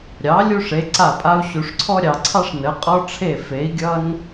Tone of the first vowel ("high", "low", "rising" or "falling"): rising